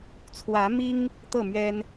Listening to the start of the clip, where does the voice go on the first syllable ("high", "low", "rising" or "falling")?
rising